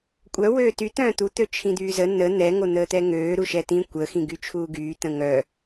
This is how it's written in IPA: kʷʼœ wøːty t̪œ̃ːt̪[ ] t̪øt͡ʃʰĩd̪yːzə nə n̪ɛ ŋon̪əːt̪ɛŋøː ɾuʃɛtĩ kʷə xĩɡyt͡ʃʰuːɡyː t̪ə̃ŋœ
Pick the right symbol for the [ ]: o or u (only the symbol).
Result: u